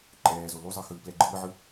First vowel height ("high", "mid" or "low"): mid